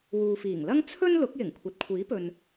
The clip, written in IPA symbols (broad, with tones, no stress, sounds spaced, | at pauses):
w uː˨ f iː˨˩ ŋ l ɐ˥ ŋ t͡sʰ ɵ˥ n l ʊ˨˥ k̚ j ɪ˨˩ ŋ kʷʰ ɐ˨ t̚ kʷʰ iː˨˥ p ɵ˨ n